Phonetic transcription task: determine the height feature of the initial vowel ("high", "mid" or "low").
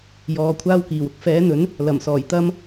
mid